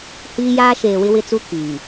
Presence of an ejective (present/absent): absent